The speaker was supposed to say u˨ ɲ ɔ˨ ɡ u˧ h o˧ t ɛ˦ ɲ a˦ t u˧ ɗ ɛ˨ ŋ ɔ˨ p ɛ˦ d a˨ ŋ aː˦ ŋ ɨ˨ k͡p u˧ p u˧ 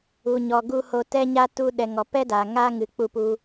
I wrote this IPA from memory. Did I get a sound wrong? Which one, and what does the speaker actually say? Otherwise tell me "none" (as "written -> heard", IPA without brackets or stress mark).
none